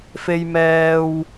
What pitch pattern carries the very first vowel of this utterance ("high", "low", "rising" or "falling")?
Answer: low